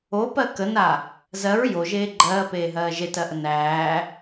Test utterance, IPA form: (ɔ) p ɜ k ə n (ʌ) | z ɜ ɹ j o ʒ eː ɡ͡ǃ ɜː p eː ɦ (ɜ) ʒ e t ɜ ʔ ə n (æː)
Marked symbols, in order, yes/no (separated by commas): no, no, no, yes